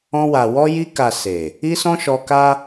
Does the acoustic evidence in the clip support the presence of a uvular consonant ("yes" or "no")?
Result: no